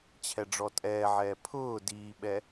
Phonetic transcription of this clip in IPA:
t͡ɕʰ ɛ ɖ͡ʐ ɔ tʼ ɛː ʕ ɛː pʰ ʊː d iː ɓ ɛ

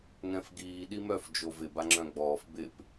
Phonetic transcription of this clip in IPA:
ŋ ɛ̃ f ɡ iː ɗ i m œ f d͡ʒ o v ɪ b a ŋ͡ǁ œ̃ ɡ͡b ɔː f b ɪ p

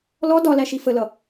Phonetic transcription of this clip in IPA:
l ɔ d ɒ l æ ʃ i f ə l ʌ

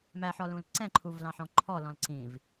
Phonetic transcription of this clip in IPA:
m æ ħ ɔ l ũ l ǀ ɛ̃ ǃʰ u v l ɑ̃ ħ ɔ̃ ǃʰ ɔ l ɔ̃ l ǀ ĩ v

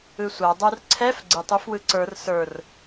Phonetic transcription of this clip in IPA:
ɯ sʷ a dˤ ə˞ r ǀʰ ɛ f ɡ͡ǀ ɯ tˤ ø f w ɯ ǀ ə˞ r s ə˞ r

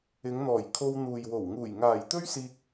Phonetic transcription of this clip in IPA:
ɪ˨˧ ŋ n̪ ɔː˨˩ j kʰ o˧ w n̪ uː˨ j w o˨˩ w ŋ uː˨˩ j ŋ aː˨˩ j t̪ ɵ˥ ɥ s iː˧ k̚

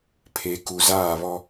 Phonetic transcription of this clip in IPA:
pʰ e˨ k u˨ z aː˦˨ β ɔ˦

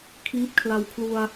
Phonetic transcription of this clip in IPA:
kʰ iː˥˩ p̚ kʰ l a˧ w kʰ l u˧ a̯

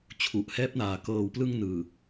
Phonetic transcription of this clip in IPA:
t͡ɕʰ u˨˩ ʔ h ɛː˦˥ p̚ n aː˨˩ k ɤː˨˩ w p l ɯ˧ ŋ n ɯː˨˩

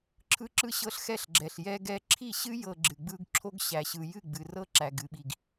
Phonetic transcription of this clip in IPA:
ǁʰ ɯ˦ ǁ ɯ˦ ɕ ɤ˦ ɬ x ɛ˦ ɬ ɡ͡ǁ ɛ˨ ɬ j ɛ˦ ɡ ɛ˦ ǁʰ i˦˨ ɕ ɨ˦ j ɤ˨ ɡ͡ǁ ɨ˨ ɡ͡b ɯ˦ ɡ ǁʰ o˦ ɡ ɕ æ˨ ɕ ɯ˨ j ɨ˦˨ ɡ͡b ɨ˨ r ɤ˦ ǁ æ˨ ɡ ɨ˨ ɓ i˨ ɡ

